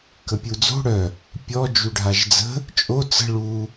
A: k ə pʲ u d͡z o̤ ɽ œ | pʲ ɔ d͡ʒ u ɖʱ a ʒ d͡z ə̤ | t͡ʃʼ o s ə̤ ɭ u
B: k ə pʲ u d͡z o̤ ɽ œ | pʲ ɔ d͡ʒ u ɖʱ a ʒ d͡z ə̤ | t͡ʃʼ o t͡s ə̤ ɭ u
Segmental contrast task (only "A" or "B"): B